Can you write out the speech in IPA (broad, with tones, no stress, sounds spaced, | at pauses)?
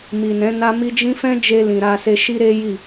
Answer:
m i˨ n ɛ̃˨˦ n a˦ m i˦ d͡ʒ ĩ˦ f ɛ̃˦ d͡ʒ e˧ l ĩ˨ ɾ a˧ s e˧ ʃ i˦ ɾ e˦ j i˦˨